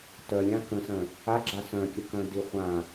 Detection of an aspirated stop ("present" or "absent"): absent